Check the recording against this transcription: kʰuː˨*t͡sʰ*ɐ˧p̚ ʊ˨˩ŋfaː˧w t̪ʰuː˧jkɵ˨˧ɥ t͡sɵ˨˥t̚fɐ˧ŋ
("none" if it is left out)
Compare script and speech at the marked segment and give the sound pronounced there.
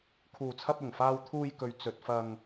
t͡sʰ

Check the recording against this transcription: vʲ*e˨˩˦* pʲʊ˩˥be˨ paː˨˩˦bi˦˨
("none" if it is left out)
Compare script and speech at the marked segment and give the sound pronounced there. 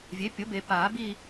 e˩˥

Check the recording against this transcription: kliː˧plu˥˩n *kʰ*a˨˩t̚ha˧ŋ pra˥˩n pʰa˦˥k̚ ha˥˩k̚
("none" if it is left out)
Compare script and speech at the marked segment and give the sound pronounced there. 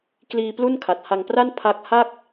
kʰ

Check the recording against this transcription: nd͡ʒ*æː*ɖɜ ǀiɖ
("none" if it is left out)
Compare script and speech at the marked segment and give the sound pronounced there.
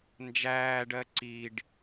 æː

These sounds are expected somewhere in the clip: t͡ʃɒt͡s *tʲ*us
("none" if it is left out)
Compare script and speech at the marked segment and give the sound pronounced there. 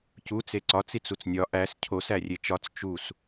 t͡ʃ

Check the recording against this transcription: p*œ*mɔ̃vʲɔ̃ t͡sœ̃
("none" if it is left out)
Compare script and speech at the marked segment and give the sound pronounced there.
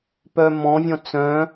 œ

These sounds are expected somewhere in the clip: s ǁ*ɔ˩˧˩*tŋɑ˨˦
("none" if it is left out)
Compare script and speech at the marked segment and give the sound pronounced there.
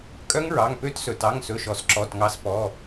ɔ˩˧˩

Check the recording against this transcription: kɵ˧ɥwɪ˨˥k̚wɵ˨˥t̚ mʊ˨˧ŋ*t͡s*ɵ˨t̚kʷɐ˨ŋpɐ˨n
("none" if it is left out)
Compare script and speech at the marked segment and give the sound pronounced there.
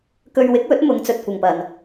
t͡s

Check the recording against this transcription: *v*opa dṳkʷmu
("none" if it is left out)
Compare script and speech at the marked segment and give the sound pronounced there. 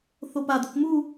θ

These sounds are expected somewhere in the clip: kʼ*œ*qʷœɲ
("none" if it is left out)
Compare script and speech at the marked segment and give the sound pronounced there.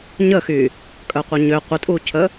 œ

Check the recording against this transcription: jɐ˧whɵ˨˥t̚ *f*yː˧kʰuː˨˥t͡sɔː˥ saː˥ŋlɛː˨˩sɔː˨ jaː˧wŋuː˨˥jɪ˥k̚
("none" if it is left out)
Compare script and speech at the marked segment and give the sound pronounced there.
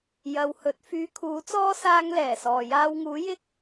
f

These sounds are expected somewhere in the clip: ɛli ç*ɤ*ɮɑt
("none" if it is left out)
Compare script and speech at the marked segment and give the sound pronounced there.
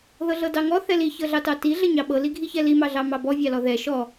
ɤ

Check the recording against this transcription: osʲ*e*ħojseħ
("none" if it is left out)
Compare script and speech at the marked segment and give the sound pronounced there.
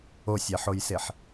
ɛ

